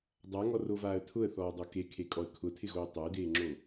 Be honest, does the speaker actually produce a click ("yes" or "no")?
yes